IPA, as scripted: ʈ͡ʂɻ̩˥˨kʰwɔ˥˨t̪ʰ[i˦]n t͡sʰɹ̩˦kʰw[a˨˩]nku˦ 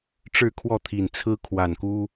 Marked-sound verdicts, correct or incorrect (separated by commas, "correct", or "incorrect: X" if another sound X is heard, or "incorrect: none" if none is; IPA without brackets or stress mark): incorrect: i˨˩, correct